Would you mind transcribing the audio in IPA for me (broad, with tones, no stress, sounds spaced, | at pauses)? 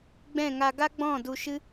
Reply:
ɡ͡b ɛ̃˦˨ ŋ a˧ ɡ a˦ ɡ͡b ɔ̃˦˨ d u˧ ʃ ɨ˦